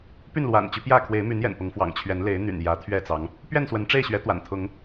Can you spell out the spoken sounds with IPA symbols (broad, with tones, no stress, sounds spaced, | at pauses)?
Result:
p y˥˨ n l w a̰˨˩ n t͡ɕ y˨˦ p j ä˥˨ kʰ w e˨˦ ɪ̯ m y˨˦ n j ɛ̰˨˩ n p ʊ˨˦ ŋ f w ɑ̰˨˩ ŋ t͡ɕʰ ɥ ɛ˨˦ n l e˨˦ ɪ̯ n̪ y̰˨˩ n j ä˨˦ t̪ʰ ɥ ɛ˥˨ t͡s ɑ˨˦ ŋ | p ɥ ɛ˥˨ n s w ə˨˦ n ʈ͡ʂ e˥˨ ɪ̯ ɕ ɥ ɛ˨˦ t̪ w a̰˨˩ n t̪ʰ ʊ˨˦ ŋ